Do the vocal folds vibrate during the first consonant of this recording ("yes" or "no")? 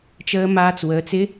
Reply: no